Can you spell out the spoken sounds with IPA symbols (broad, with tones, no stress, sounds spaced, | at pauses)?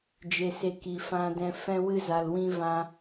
d͡ʒ e˨ s e˧ k i˨ f ã˧ d ɛ̃˧ f ɛ̃˧ w ɨ˧ z a˨ l w ĩ˧ v ã˧